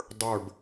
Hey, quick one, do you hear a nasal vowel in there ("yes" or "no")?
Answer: no